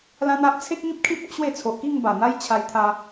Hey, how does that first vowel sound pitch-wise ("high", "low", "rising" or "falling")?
high